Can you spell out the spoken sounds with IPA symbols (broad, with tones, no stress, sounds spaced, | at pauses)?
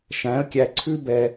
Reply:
ʃ æ̃˩˥ ə̯ kʲ æ˨ ǀʰ ʉ˥ b ɛ˨